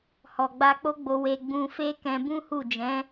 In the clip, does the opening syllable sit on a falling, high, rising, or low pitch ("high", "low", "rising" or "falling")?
low